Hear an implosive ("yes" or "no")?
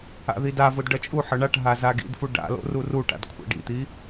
no